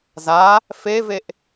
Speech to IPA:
z a | f e v e ʔ

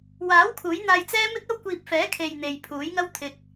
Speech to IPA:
w aː˨˥ w kʰ uː˨˥ j n̪ aː˧ j t͡s ɛː˥ m ɪ˥ k̚ ɐ˥ w kʷ iː˧ p̚ f ɛː˨˥ kʰ e˨ j n̪ e˨ j pʰ uː˨˥ j ŋ ɐ˥ w t̪ʰ ɪ˨ k̚

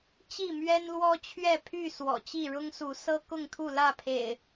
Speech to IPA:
t͡ɕ i˥˨ m ɥ ɛ˦ n l w ɔ˦ t͡ɕʰ ɥ ɛ˥˨ pʰ y˥˨ s w ɔ̰˨˩ t͡ɕ i˥˨ ɻ ʊ˦ ŋ s u˨˦ s ɤ˦ k ʊ˥˨ ŋ t̪ʰ u˥˨ l ä˥˨ pʰ ḛ˨˩ ɪ̯

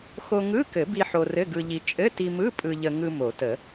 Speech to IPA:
x o˧ ŋ ɯ˧˥˧ k ɘ˨˩˦ b i˧ ħ o˧ r ɘ˧˥˧ ɡ ɯ˧ ʎ i˧ t͡ʃʼ ɘ˧˥˧ t i˧ m ɯ˧˥˧ pʼ ɯ˧ ʎ ə˧ ŋ ɯ˧ m o˨˩˦ t ə˨˩˦

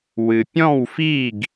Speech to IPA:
w ɨ˩ pʲ ɔ̃˥˩ w f i˥˩ ɡ

